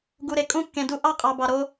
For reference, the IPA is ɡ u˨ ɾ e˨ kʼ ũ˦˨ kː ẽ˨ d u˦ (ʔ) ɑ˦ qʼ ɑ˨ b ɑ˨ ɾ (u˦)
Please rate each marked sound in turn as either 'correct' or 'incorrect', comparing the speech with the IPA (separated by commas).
correct, incorrect